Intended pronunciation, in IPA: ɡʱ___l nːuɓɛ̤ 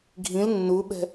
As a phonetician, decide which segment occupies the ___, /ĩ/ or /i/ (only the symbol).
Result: ĩ